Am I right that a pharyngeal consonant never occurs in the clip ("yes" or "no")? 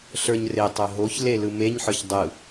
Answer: no